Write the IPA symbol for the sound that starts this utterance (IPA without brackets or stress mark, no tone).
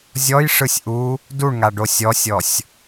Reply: zʲ